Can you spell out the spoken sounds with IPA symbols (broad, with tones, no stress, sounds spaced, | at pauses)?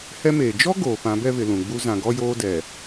h ɛ˦ m eː˨ d͡ʒ ɔ˦ ɡ oː˨ p ã˨˦ b ɛ˦ β ɪ˨ l ũ˨ ɡ͡b u˦ z ã˨ ɡ ɔ˦ j oː˦ d ɛ˨